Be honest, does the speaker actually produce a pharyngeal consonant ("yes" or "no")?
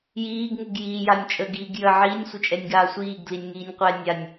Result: yes